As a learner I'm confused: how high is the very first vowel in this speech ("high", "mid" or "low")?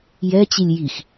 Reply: mid